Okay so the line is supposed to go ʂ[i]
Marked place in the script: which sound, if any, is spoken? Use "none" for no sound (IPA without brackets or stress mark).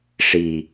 i